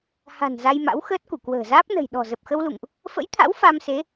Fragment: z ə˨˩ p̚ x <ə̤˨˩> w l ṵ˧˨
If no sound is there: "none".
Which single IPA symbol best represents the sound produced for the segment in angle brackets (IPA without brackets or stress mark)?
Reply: ə˧